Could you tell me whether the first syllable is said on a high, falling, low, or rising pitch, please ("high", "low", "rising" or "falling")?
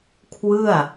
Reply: falling